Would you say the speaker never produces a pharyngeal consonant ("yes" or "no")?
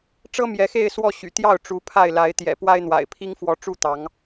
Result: yes